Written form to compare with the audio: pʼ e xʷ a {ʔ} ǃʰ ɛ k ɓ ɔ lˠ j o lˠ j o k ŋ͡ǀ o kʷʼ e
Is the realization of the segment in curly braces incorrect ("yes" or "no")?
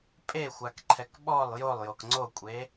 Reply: yes